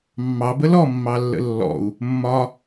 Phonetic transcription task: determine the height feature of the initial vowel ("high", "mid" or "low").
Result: low